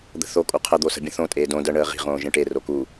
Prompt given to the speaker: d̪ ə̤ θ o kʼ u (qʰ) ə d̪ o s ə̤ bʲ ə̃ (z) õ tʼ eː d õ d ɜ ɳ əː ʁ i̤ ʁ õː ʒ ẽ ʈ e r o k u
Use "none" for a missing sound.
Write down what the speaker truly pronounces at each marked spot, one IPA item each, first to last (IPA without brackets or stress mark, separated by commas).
qʰ, θ